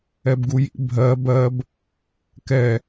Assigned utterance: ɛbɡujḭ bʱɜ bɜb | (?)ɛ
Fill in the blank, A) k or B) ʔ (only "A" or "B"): A